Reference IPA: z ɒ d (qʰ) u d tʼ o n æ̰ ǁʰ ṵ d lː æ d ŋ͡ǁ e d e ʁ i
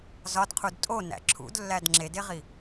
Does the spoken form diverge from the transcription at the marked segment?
no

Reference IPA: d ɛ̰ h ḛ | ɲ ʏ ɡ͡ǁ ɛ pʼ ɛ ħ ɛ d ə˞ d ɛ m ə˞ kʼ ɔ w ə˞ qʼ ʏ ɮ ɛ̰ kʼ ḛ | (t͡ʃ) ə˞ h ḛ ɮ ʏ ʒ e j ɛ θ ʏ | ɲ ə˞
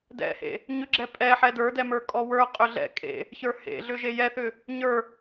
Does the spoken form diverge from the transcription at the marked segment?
yes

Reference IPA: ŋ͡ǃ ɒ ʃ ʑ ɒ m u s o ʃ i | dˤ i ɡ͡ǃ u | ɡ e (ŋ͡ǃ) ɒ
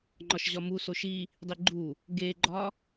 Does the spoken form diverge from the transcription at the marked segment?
yes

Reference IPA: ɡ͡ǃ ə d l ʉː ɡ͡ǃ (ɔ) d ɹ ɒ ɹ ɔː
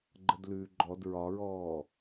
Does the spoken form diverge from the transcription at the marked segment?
no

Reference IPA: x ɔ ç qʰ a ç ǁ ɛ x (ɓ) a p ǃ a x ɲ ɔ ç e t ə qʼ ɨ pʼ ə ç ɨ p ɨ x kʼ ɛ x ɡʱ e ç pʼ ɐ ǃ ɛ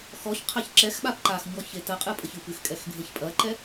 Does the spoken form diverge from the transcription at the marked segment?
no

